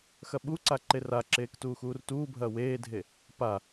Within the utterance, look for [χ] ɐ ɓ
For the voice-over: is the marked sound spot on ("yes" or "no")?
no